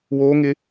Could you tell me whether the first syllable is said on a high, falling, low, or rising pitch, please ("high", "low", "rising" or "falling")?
high